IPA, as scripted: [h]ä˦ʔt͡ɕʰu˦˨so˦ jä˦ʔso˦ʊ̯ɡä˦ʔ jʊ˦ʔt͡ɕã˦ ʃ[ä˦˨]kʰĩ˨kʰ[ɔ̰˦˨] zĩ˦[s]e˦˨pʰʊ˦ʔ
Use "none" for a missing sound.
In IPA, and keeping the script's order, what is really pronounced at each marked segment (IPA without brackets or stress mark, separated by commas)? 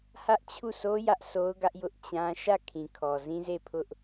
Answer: h, ä˦˨, ɔ˨, z